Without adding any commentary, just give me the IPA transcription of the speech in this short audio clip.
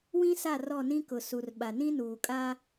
w ĩ˦ s a˦˨ r ɔ˦˨ n ĩ˦ k ʊ˨ s u˨ r ɓ a˨ n ĩ˦ n uː˨ kʼ aː˦

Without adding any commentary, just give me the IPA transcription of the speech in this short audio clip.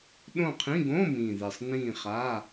ɗ õ˦˨ qʰ ĩ˧˥˧ ɡ õ˧˥˧ m ĩ˨˩ ð e˨˩ sˤ n ĩː˦˨ χ a˧˥˧

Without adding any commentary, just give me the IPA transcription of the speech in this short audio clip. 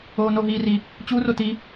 oː n o ɦ iː r i | t͡ɕ u r o t i

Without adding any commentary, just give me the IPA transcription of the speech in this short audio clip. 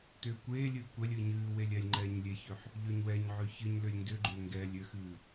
t ʏː kʷ eː lʲ ɨː kʷ ɛ lʲ ɨː ɲ ɨː w e lʲ ɛ lʲ ŋ͡ǃ ɛː ɲ lʲ e ç ø ħ | ʎ ø ɲ w ɛ ɲ ʕ ø ç ɨ ɲ l ʏ lʲ n d ʏ ɡ͡ǃ ʏː ŋ ɡ ɛː lʲ ʏ x ɨː

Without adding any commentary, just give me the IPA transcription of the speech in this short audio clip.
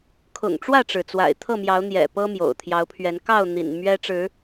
kʰ ʊ̰˨˩ ŋ ʈ͡ʂ w ä˥˨ ʈ͡ʂ ɻ̩˩ t͡s w a̰˨˩ ɪ̯ t̪ʰ ɤ˥˨ m j ɑ˨˦ ʊ̯ n̪ j ɛ̰˨˩ p ɤ˦ m j o̰˨˩ ʊ̯ t̪ʰ j ɑ˨˦ ʊ̯ pʰ ɥ ɛ˨˦ n k ɑ˥˨ ʊ̯ n̪ ḭ˨˩ n m ɥ ɛ˦ ʈ͡ʂ ɻ̩˨˦

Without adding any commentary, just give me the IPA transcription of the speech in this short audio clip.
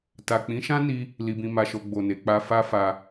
t a˨ k͡p ĩ˨˦ ʃ ã˦ n i˦ | l i˧ b ĩ˧ m a˧ ʃ o˧ ɡ͡b o˨ n e˨ k͡p a˧ f a˦ f a˧

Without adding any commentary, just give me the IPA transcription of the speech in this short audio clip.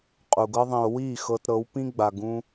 qʼ u˨ ɡ ɤ˦ ðˤ ĩ˨ o̯ w iː˦˨ x ɤ˧ t ɾ ɤ˨˦ w p ĩ˦ ɡ͡b a˨ ɡ ũ˦

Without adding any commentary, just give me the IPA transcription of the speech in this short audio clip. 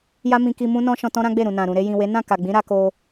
j a˦ m ĩ˧ k i˧ m ũ˦ n ɔ̃˦ ʃ ɔ̃˧ t ɔ̃˦ ɾ ã˦ ɡ͡b e˦˨ ɾ ũ˨ n ã˨ ɾ ũ˨ ɾ e˧ j ĩ˨ w e˨˦ n ã˦˨ k a˨ ɡ͡b ĩ˨˦ ɾ a˧ k o˧

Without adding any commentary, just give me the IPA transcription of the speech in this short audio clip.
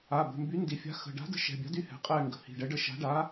a˩˧˩ b ə̤˩˧˩ m b y˨˥ n d i˩˧˩ fʲ a̤˨˥ x ə̤˩˧˩ ɖ a̤˨˥ d ə̤˨˥ ʃ ɛ̤˩˧˩ bʲ a̤˨˥ d y˦˨ h ɛ̤˩˧˩ qʼ ɛ˦˨ ŋ ɡ ə̤˩˧˩ h i̤˩˧˩ ɖ ɛ˨˥ ɖ ə˦˨ ʃ a̤˨˥ ɖ a˨˥

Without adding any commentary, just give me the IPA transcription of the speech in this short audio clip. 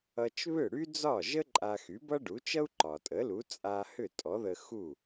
ʌ˧ t͡ʃ β ʏ˥˩ ɽ y˥ d͡z ɒ˥˩ ʒ ə˥ ǃʼ a˧ x y˩˥ b ʌ˥ ɖ u˩˥ t͡ʃ ʌ˥ u̯ ǃ ɒ˩ tʼ ə˩˥ l u˩˥ t͡sʼ a˧ h ʏ˥˩ tʼ ɔ˩˥ ð ə˧ x u˥˩

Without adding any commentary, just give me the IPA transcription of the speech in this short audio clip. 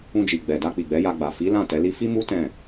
ũ˧ d͡ʒ i˨ ɡ͡b ɛ˨ d a˧ k͡p i˨ ɡ͡b ɛ˨˦ j a˧ ɡ͡b a˨ f i˨˦ l ã˦˨ t ɛ˨˦ l i˦ f i˦ m u˦ t ɛ̃˦˨

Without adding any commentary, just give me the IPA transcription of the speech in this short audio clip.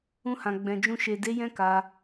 ũ˧ h ã˨ ɡ͡b ɛ̃˨ d͡ʒ ũ˧ ʃ e˨ d e˨˦ j ɛ̃˦ k a˧

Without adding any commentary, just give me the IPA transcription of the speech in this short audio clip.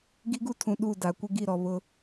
ɡ i˦ ɡ u˦ tʰ ũ˨ ɗ u˦˨ d a˨ kʷ ɪ˦ ɡ i˦˨ ɾ ɔ˨ β ʊ˦

